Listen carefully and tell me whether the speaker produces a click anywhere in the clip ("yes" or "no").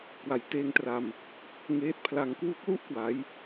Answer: no